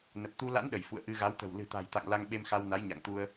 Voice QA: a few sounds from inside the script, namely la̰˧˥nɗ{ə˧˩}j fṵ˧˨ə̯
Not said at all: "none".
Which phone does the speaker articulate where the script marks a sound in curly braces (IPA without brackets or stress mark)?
ə˧˩